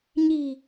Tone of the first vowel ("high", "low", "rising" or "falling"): low